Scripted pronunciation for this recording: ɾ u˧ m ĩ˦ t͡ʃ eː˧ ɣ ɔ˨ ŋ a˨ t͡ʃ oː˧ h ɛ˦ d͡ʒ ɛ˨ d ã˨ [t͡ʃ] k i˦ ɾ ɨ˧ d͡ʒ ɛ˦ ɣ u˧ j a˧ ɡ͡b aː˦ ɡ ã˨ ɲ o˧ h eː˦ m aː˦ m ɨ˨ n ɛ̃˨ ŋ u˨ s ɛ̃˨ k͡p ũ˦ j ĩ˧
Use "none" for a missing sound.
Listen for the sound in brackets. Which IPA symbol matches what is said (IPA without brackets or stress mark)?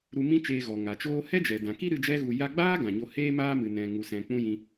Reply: none